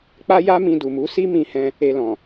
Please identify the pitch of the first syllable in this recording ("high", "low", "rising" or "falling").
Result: high